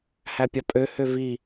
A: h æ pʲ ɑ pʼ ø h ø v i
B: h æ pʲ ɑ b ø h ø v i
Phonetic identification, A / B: A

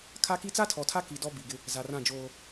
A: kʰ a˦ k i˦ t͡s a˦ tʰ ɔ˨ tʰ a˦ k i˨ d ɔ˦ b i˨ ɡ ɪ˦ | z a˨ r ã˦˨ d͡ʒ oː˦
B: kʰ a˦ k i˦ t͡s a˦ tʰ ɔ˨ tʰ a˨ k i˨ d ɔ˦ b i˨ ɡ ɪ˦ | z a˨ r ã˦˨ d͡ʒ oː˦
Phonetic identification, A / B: A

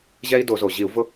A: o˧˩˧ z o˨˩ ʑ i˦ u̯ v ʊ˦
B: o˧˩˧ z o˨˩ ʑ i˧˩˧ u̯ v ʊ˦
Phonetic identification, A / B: B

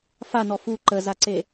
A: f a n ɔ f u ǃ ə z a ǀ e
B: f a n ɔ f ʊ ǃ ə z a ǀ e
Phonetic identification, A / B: A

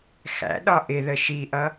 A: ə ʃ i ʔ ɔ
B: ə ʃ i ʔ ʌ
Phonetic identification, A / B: B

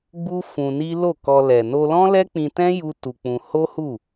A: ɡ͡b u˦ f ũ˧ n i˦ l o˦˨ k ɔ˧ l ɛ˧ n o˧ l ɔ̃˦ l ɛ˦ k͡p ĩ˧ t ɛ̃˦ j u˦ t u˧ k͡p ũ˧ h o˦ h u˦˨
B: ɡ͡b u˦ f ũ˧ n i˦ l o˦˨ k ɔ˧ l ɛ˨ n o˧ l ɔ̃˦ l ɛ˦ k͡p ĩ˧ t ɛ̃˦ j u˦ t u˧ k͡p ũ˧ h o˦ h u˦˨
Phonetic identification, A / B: B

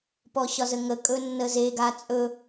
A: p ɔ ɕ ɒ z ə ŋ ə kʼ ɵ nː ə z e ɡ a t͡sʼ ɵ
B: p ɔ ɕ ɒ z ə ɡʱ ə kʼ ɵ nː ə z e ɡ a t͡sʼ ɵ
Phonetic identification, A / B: A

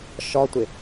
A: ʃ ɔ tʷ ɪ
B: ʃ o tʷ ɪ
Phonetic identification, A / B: A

